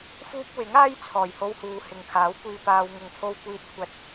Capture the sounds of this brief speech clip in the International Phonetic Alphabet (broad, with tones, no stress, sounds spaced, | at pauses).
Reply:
f uː˥ p̚ w ɪ˨˥ ŋ aː˥ j t͡sʰ ɔː˨˩ j h o˧ w h uː˨ h ɪ˨ ŋ kʰ aː˨˥ w kʷ iː˧ p aː˨ w ŋ ʊ˨˧ ŋ t̪ʰ o˧ w kʷ iː˨ t̚ kʷʰ ɐ˨˥ t̚